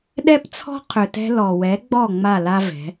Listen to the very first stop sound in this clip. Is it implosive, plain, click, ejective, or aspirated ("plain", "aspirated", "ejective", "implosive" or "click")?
implosive